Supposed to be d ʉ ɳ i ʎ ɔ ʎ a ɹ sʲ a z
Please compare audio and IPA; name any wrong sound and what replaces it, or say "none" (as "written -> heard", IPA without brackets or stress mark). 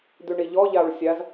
none